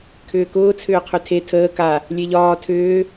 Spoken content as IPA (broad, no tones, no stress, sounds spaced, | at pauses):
kʰ ʏː k ʊː t͡sʰ ʏː qʰ ʏ tʰ e tʰ əː k a | lʲ e ʎ ɒː tʰ ʏː